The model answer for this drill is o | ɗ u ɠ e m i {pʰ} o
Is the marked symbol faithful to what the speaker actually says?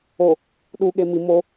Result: no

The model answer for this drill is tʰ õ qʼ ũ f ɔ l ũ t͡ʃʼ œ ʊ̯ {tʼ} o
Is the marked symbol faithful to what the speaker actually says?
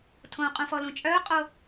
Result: no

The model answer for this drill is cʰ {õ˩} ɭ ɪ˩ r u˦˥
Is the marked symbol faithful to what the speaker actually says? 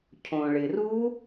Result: yes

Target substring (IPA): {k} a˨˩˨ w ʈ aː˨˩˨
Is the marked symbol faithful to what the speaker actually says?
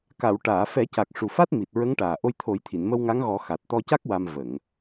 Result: yes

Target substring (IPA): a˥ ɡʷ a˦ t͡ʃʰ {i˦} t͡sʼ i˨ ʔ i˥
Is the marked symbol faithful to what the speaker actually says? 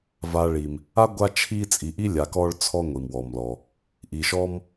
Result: yes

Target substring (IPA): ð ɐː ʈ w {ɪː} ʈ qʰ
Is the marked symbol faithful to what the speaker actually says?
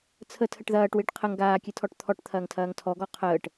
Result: yes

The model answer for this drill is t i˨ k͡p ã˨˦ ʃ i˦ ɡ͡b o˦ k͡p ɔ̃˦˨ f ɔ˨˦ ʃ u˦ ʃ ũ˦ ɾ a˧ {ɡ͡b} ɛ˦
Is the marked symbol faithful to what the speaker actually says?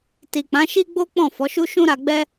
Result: yes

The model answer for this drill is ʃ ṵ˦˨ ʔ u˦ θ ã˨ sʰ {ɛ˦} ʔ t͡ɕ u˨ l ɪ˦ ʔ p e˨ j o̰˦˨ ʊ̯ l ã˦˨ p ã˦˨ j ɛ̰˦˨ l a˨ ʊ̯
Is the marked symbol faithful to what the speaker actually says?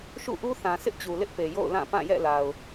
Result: no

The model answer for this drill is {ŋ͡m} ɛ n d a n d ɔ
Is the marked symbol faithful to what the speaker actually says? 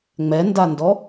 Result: yes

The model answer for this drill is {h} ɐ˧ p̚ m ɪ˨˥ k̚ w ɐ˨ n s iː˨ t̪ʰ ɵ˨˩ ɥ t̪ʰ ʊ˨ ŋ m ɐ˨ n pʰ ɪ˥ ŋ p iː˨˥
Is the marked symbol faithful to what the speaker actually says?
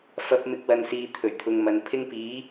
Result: no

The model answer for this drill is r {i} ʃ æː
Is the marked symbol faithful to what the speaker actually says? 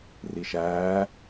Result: yes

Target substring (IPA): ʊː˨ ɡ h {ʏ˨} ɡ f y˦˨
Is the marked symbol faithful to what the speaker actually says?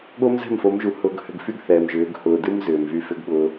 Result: yes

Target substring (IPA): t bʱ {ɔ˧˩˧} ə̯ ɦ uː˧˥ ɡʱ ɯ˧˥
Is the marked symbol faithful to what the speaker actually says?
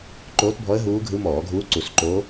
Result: no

